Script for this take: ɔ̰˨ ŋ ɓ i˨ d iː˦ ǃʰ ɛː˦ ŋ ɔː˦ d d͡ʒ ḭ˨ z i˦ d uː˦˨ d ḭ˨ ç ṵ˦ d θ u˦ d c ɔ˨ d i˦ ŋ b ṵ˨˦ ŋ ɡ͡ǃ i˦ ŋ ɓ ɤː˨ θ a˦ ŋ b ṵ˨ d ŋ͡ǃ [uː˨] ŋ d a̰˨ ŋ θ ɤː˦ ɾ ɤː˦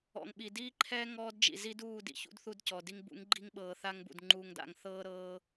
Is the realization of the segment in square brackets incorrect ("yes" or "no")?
no